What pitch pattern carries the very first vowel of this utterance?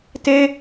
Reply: high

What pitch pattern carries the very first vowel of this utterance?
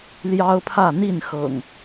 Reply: high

